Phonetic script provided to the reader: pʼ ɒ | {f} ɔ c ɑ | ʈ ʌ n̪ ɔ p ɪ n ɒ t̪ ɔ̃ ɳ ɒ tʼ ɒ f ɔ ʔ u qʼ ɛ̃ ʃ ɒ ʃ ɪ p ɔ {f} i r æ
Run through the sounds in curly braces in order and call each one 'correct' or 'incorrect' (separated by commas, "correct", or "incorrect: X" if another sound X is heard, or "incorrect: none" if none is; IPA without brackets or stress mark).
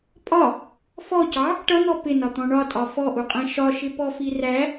correct, correct